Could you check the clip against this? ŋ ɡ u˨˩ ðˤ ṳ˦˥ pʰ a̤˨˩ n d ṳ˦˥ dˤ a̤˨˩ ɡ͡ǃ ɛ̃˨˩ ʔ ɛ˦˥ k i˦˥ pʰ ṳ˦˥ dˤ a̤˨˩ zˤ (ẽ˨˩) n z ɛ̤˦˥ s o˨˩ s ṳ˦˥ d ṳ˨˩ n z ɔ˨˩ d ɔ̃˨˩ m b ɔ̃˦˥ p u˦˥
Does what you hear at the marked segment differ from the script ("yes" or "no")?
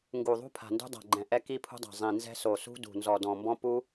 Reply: yes